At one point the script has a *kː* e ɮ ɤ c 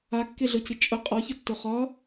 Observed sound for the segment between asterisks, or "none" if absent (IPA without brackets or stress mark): kː